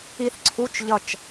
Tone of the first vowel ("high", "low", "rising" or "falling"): falling